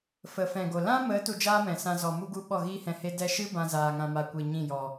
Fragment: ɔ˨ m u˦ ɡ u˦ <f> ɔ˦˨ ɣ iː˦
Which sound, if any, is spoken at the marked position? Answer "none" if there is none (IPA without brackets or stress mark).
ɓ